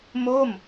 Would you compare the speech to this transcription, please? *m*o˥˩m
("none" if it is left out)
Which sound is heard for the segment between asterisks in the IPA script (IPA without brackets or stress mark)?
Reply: m